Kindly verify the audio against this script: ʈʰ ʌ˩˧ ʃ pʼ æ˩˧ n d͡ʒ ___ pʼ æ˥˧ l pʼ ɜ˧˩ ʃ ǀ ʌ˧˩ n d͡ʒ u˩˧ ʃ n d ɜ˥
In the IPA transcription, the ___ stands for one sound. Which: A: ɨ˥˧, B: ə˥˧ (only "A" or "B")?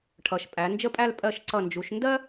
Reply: B